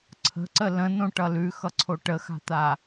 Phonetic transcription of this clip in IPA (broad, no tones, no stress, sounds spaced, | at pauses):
ǀʰ ə̤ ǀ ə l ə̃ n õ ʈ ʌ l ʉ x ʌ ǀʰ o ʈ ə x a̤ t̪ a